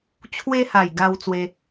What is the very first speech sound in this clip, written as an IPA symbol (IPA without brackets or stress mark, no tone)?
t͡ɕʰ